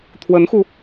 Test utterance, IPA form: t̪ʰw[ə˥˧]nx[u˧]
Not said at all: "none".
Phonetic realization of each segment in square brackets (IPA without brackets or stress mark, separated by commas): ə˧˥, u˧